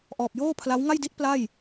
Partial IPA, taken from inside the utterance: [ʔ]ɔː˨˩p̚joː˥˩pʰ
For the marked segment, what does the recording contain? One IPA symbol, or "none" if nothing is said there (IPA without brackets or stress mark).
ʔ